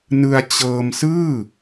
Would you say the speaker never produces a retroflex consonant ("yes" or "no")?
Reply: yes